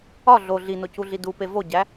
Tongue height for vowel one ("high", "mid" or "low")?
low